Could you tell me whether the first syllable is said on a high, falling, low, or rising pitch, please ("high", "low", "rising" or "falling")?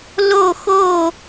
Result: falling